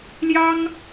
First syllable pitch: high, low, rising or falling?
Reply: high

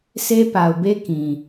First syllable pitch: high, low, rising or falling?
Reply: high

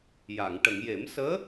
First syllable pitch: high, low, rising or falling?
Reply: low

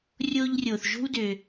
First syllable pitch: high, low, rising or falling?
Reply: high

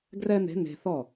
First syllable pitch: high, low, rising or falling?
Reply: high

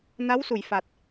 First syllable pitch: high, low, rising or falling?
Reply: rising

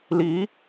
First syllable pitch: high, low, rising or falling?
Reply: rising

